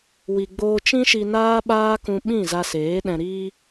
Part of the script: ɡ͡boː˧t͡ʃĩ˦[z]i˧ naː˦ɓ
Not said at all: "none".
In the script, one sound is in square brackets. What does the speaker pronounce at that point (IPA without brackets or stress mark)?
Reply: ʃ